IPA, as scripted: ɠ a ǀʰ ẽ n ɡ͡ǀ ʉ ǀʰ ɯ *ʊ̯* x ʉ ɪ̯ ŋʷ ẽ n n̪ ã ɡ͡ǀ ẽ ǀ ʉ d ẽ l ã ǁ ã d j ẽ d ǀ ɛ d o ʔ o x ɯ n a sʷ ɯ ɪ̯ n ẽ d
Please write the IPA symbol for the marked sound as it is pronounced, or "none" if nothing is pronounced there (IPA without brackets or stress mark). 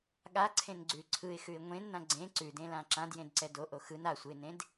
ɪ̯